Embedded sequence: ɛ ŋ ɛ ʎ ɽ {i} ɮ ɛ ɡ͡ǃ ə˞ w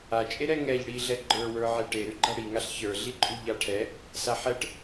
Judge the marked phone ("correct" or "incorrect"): correct